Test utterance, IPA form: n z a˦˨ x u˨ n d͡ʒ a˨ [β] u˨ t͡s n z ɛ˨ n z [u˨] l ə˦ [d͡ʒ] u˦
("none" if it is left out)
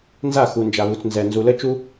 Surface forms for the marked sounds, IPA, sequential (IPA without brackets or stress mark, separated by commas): β, u˨, t͡ʃ